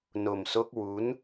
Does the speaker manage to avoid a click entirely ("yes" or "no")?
yes